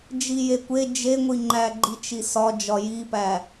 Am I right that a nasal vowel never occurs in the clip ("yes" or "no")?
yes